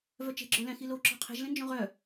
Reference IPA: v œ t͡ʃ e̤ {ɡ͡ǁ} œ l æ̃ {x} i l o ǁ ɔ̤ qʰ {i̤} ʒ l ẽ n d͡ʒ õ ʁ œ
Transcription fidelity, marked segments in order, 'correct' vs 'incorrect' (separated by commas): correct, correct, incorrect